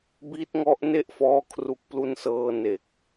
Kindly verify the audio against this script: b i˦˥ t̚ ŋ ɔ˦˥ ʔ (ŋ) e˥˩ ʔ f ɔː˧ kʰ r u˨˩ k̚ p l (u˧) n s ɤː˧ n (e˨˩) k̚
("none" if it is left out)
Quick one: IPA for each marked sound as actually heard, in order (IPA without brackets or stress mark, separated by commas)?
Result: n, u˧, e˨˩